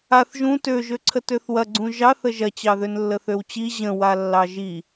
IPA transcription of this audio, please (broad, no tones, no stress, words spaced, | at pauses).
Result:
aθ ʒũ tøʒøǀʰə tøθwɐɡ͡ǀũ ʒɑθ əʒɐt͡ɕɑ ðønlːəθøwt͡ɕi ʑə̃wa lːɑʒi